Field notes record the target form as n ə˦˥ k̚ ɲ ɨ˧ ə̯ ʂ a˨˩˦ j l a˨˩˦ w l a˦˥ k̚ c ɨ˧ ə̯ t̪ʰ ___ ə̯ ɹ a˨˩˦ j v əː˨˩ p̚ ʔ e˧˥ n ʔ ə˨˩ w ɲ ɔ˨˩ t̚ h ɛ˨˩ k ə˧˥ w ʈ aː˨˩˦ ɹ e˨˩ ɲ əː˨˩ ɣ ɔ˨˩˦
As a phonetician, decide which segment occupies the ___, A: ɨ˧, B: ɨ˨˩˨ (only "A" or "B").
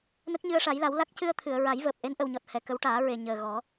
B